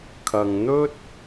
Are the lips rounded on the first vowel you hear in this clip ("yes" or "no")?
no